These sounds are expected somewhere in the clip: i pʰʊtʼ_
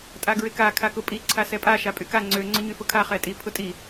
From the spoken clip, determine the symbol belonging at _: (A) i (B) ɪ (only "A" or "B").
A